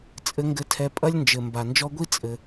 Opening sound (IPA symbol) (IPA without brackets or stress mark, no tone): t͡sʼ